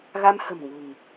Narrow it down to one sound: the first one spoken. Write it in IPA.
ɣ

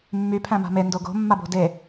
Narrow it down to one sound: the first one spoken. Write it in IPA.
mː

